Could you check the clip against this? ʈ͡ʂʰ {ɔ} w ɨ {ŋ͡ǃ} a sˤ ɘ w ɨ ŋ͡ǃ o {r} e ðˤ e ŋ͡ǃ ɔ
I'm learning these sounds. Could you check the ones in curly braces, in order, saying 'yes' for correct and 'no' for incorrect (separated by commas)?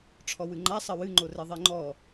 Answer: yes, yes, yes